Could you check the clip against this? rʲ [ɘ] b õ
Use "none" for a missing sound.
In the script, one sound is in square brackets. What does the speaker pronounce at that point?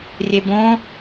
e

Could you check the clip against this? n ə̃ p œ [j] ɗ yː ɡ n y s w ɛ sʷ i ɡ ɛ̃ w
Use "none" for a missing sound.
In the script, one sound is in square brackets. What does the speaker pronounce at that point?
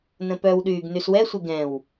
w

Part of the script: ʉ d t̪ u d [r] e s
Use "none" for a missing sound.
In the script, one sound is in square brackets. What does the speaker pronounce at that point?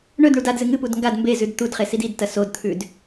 χ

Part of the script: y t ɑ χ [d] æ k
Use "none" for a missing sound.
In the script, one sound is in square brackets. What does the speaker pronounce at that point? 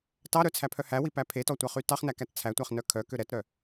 n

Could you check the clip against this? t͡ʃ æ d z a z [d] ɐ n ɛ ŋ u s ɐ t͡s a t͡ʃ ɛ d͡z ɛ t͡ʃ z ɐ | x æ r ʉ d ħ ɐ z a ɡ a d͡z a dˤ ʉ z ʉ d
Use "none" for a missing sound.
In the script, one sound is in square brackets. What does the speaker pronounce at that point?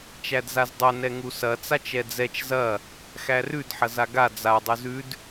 dˤ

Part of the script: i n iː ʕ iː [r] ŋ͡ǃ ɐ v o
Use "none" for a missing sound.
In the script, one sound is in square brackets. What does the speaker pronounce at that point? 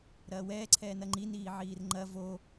r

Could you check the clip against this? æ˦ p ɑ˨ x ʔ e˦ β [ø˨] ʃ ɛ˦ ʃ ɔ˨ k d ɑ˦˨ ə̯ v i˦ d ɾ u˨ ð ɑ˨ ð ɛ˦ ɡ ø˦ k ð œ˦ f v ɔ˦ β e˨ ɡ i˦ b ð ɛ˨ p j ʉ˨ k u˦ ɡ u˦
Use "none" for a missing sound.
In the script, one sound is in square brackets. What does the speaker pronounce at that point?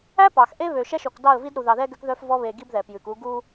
ø˨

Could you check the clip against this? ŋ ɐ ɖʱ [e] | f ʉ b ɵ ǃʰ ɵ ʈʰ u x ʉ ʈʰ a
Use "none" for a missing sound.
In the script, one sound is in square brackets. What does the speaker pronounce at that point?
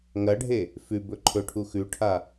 e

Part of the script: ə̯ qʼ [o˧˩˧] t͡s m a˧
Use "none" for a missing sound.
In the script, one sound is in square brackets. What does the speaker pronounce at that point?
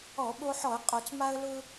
o˧˩˧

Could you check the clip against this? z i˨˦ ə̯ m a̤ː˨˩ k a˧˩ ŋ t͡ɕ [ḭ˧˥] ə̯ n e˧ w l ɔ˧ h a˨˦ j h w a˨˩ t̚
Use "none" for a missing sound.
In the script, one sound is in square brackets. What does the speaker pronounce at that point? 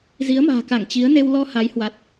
i˨˦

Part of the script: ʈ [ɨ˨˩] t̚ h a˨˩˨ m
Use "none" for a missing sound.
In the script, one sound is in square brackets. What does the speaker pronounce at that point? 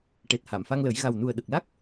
e˨˩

